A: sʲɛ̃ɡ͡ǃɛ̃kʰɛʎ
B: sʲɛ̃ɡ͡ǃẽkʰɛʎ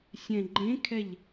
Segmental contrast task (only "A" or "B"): B